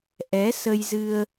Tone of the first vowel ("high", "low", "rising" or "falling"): rising